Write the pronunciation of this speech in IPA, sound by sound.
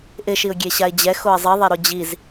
ʔ ɪ ʃ i ʊ̯ ɡʲ e ɕ a ɪ̯ d͡ʑ ɛ x o ɪ̯ zˤ i ðˤ e ɾ o d͡ʑ i z

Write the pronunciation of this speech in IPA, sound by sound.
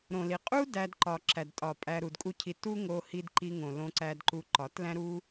ɾ õ˨ l i˨ qʼ u˦ d æ˧ d ǃ ɒ˨ ǁ æ˨ d tʼ ɒ˨ pʼ æ˧ ɾ u˨ d kʼ u˦ cʰ i˧ t u˦ ŋ o˧ h i˧ d ǃ i˧ ŋ õ˨ l õ˧ ǀ æ˧ d ǃ u˧ ǃ ɒ˨˦ t l æ̃˦ ɾ u˦

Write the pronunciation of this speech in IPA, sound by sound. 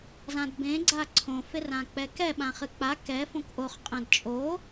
z ã d b ẽ ɡ͡ǀ a ǀʰ õ f e r ã k͡p ɛ k ɛ ɓ ã χ ɨ k͡p a k ɛ f õ k ʔ o χ qʼ ɛ̃ d t͡ʃʼ o

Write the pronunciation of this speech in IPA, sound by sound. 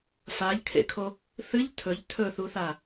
f a ʎ kʰ ḛ kʰ o | θ ɨ ʎ tʰ ɵ ʎ tʰ ɵ θ u θ a

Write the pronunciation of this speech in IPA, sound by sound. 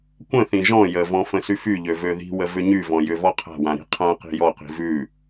kʷ ə̃ θ ĩ ʒ ɔ̃ j ə v ɔ̃ f ə̃ s y f y ʎ ø v ø ð i̤ w ə v ʏ ɲ y v ɔ̃ j ʏ v ɔ qʰ a̤ w ã ɾ i̤ qʰ ã q i̤ j ɔ q i̤ v ʉ

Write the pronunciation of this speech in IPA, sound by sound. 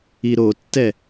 i ɾ o tː ɛ

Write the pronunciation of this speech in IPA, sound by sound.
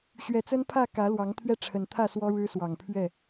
ɕ ɥ ɛ˨˩ t͡s ə˦ n pʰ ä˥˨ k ä˨˦ l w ɑ˨˦ ŋ t̪ʰ ɥ ɛ˦ ʈ͡ʂʰ ə˨˩ n t̪ʰ ä˥˨ s w ɔ˦ ɻ ɻ̩˦ s w ɑ˨˩ ŋ pʰ ɥ ɛ˥˨

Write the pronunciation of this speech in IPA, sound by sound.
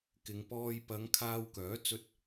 k ɪ˨˧ ŋ p ɔː˧ j p ɐ˨˧ ŋ kʰ aː˧ w k œː˨˥ t͡s ɵ˧ t̚

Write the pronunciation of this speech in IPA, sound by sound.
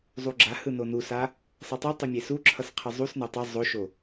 zˤ u ɡ͡ǁ a h ɯ n o n u s a | sˤ ɯ tˤ i tˤ i mʲ e s u ǁʰ ʌ s qʰ ɯ zˤ u s n e tˤ ɯ zˤ o ʃ o

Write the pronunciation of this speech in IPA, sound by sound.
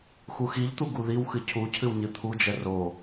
x u x i ʎ t̪ u ɡ u ð i w x ɨ cʰ u cʰ ɨ w ɲ ɨ t̪ʰ u d͡ʒ ɛ r o

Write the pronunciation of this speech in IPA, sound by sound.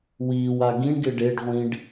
w iː w a ɡ ĩ ɳ ɡ ɪ ɖ e ɖ ʁʷ ĩ ɖ

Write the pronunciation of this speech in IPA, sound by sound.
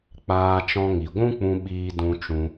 k͡p aː˧ t͡ʃ ɔ̃˧ ŋ i˨ ɡʷ ũ˦ k͡p ũ˧ ɓ iː˧ d ũ˧ t͡ʃ ũ˧

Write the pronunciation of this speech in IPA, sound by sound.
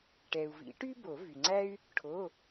ʈ ɛ˩ u̯ v ḭ˨˩˦ ʈ y˥ b o˨˩˦ v y˩ ŋ͡ǀ æ˥ y̯ | ʈʰ o˩˧˩

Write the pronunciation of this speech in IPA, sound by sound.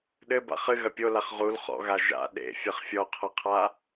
ɗ ɘ b a̰ χ ɨ ɣ ɐ pʲ o l a χ ʁ u l χ ɔ̰ ɣ a ʒ a̰ ɗ ḛ fʲ ɘ χ fʲ ɔ qʰ ɐ qʰ a

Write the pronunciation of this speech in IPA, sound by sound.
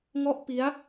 ŋ ɔ˦˥ ʔ p i˦˥ a̯

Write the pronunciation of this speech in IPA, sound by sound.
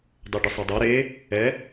dˤ a ɖ ɘ sˤ ɛ dˤ a ɾ e | ɛ

